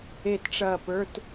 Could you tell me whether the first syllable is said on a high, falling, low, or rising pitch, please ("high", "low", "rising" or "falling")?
falling